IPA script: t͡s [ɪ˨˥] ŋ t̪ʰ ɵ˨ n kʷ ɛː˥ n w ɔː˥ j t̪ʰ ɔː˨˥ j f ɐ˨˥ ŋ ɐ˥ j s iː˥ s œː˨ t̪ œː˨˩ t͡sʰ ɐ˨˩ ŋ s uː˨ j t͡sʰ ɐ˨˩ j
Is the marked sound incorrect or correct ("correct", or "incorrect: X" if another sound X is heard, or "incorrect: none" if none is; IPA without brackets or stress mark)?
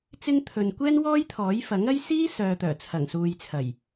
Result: incorrect: ɪ˥